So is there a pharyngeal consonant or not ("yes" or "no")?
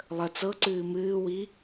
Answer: no